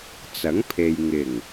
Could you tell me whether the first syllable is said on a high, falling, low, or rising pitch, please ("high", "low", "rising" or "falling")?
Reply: rising